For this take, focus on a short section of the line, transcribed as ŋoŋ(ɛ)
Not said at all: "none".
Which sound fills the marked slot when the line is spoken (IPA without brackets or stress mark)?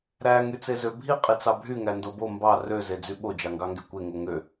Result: ø